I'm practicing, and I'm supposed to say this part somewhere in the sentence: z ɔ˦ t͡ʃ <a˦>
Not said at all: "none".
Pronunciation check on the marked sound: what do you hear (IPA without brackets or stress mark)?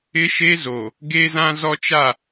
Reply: a˦˨